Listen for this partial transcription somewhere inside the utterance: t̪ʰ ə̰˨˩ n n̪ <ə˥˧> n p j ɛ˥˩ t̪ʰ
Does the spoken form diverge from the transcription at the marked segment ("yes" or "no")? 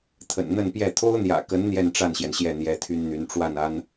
no